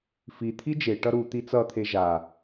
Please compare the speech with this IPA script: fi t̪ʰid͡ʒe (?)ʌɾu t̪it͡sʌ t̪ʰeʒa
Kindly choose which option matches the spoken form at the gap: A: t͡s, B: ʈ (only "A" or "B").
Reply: B